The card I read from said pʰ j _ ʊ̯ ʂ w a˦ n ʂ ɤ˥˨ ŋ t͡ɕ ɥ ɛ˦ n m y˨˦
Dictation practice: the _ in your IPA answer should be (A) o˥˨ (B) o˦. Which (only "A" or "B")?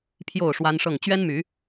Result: A